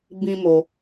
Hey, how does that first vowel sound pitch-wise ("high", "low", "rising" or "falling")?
high